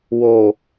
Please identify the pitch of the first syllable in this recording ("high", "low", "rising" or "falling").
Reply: low